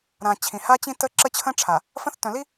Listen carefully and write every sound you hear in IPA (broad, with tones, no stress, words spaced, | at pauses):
ɾã˨ t͡ɕʰĩ˨ha˦t͡ɕĩ˦tə˦ ǁə˦t͡ɕʰə̃˦ʈ͡ʂʰa˨ | fə̃˦θtœ̃˨li˦